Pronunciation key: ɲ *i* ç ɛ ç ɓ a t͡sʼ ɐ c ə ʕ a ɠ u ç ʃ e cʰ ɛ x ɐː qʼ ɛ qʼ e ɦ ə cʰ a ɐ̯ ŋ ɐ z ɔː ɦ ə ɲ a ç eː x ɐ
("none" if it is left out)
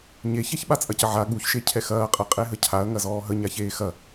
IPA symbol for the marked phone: e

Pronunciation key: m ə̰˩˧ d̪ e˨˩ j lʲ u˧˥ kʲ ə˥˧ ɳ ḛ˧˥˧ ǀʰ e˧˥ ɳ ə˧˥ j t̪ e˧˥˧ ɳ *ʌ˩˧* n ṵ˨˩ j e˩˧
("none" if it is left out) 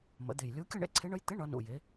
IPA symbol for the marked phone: ʌ˩˧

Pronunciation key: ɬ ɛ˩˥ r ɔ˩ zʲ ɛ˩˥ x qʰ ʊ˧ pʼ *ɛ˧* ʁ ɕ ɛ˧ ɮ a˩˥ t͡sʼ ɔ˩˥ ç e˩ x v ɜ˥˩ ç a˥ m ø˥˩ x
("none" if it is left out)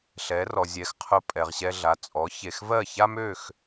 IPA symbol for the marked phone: ɛ˩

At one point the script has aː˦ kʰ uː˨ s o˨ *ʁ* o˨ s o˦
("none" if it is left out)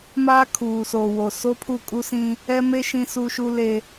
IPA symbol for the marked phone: w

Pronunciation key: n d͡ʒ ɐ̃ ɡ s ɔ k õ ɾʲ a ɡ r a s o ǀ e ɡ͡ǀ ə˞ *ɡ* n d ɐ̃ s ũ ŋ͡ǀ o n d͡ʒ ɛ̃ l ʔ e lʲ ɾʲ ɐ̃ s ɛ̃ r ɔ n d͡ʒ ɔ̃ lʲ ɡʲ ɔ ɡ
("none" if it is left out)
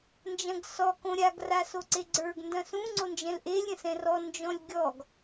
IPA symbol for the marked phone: ɡ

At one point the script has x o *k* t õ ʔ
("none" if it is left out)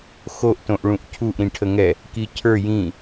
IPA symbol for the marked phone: ʔ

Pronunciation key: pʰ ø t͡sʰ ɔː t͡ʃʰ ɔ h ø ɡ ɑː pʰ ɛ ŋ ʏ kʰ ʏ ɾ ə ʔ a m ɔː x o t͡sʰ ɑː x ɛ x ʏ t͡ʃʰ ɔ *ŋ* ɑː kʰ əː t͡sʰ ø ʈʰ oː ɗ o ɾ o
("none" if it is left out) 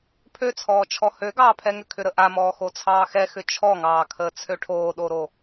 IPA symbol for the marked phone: ŋ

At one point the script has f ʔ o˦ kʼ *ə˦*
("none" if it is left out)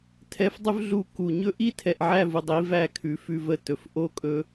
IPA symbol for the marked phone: ɵ˦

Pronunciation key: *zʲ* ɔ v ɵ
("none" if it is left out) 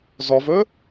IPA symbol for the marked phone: z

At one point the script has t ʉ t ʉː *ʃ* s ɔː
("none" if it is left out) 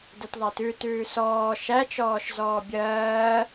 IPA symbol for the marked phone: none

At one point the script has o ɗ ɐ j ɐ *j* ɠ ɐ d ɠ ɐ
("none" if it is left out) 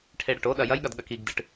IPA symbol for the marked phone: j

